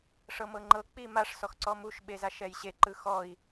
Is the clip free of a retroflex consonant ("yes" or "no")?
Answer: no